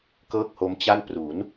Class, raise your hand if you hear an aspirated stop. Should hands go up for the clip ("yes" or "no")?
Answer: no